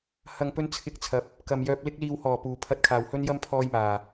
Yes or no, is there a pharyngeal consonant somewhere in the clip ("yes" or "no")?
no